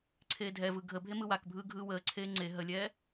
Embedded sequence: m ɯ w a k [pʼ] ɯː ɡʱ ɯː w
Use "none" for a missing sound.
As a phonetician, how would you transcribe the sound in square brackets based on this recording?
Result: bʱ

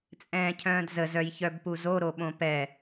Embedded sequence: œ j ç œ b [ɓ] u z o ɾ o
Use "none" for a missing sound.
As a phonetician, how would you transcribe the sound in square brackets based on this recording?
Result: p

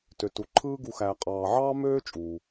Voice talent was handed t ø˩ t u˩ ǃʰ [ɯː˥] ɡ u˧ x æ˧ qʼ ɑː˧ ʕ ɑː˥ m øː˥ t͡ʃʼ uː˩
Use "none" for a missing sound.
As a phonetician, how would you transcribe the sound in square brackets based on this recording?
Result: ɯː˥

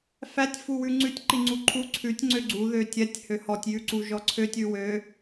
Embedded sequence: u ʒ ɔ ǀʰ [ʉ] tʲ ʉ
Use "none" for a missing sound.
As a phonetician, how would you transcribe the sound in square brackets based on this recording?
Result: ø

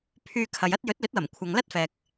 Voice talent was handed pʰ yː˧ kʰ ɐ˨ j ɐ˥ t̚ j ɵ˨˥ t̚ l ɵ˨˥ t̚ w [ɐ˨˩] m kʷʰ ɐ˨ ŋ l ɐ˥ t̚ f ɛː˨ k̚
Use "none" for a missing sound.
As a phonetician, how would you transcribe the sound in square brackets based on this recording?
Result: ɐ˨˩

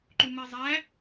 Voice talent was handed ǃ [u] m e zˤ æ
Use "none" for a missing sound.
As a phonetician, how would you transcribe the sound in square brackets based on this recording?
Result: u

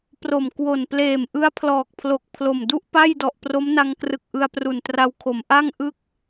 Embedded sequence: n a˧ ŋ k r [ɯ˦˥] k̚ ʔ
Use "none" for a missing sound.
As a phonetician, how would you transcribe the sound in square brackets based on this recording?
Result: ɯ˨˩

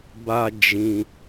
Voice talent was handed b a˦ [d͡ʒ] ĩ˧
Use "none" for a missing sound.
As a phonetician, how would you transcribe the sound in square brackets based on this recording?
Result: d͡ʒ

